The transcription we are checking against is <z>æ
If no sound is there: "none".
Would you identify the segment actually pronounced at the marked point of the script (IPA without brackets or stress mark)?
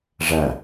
ʐ